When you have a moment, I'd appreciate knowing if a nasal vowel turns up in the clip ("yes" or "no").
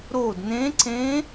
yes